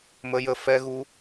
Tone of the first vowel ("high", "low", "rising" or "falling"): high